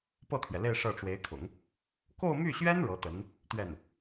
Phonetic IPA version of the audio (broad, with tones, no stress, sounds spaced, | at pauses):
p ɤ˥˩ t̪ʰ ɥ ɛ˩ l e˥˧ ɪ̯ ʂ ɤ˥˩ ʈ͡ʂ w e˧˥ ɪ̯ kʰ ʊ̰˨˩˦ ŋ | k o˥˧ ʊ̯ m y˥˩ ɕ ɥ ɛ˥ n ɻ ɤ˧˥ t̪ ə˧˥ n | t̪ ɥ ɛ˥˩ n